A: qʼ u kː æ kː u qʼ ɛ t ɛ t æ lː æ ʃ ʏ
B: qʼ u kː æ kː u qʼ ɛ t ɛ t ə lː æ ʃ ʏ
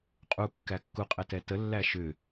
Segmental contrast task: B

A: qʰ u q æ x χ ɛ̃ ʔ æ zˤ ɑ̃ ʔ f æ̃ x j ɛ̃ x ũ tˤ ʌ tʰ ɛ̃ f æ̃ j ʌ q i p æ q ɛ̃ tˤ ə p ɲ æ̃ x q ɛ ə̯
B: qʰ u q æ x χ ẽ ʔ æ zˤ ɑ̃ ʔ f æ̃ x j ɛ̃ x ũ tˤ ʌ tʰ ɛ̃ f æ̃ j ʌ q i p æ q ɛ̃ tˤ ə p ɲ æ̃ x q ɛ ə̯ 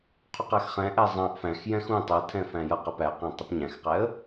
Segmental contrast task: A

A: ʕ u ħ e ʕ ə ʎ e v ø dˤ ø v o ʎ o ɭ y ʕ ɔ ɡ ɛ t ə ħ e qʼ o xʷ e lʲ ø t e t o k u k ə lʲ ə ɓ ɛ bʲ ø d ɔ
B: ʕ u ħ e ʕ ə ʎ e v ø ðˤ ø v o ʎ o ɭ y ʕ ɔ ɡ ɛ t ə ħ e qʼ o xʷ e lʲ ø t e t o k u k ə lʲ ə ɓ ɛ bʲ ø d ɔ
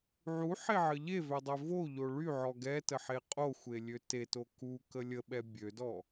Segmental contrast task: A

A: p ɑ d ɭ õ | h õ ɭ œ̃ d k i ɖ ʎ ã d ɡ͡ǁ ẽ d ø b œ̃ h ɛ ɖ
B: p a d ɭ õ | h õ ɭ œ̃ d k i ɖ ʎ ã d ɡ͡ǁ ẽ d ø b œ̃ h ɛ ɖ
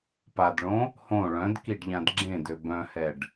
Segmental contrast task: B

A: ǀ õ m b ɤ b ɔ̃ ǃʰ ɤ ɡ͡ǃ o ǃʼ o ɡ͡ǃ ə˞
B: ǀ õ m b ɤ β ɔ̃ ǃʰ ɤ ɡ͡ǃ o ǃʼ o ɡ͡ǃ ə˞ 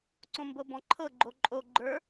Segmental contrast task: A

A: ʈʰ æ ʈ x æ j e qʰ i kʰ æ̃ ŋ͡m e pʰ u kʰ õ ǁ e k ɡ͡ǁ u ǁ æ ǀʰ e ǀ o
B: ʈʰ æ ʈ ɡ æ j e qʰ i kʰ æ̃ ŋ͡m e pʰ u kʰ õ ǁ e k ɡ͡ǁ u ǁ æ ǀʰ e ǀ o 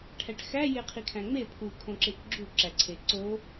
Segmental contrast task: A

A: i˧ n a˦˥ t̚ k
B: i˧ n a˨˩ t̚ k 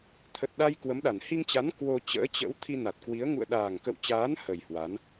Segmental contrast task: B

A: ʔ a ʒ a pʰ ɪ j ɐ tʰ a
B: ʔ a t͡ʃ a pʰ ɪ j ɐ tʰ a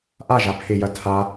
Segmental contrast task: A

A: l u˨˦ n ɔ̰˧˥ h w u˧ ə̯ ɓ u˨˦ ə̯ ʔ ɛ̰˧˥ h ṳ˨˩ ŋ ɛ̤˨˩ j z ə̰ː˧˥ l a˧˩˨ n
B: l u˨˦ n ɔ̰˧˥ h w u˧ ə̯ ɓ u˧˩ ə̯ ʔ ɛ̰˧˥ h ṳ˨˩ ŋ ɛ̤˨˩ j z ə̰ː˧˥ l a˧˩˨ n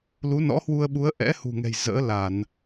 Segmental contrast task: A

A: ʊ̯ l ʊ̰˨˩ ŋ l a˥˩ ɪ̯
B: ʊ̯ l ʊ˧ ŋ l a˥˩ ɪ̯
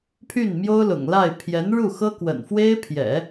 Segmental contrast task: A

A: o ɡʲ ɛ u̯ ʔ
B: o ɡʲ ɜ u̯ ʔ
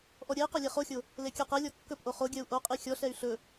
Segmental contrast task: B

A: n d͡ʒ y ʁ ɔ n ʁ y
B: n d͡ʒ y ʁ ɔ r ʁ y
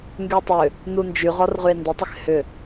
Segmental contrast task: B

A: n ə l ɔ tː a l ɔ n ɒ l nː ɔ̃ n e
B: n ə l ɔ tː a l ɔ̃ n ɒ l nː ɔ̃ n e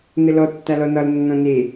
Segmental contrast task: A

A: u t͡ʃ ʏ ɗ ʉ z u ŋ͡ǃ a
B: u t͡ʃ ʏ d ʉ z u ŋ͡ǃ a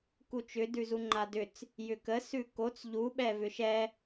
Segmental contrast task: B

